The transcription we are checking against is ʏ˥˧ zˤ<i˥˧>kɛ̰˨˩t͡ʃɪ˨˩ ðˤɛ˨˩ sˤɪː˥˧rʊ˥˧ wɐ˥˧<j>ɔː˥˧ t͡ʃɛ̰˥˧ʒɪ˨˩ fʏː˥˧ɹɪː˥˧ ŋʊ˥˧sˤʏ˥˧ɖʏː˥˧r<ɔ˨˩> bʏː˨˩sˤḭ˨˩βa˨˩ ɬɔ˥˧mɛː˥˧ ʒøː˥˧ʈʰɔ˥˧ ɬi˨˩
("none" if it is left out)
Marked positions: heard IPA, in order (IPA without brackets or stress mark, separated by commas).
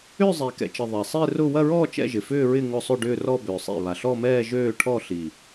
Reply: i˨˩, ɹ, ɔ˥˧